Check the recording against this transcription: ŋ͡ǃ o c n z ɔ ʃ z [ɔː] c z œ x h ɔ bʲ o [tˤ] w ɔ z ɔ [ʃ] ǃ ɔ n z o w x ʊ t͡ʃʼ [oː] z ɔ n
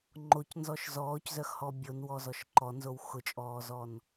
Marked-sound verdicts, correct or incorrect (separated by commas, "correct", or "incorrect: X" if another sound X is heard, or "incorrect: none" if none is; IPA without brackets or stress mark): correct, incorrect: n, correct, incorrect: ɔː